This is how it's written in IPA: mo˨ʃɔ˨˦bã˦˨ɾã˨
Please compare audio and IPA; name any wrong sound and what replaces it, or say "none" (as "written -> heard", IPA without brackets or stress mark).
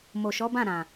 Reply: none